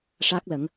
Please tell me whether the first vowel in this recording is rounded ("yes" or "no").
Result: no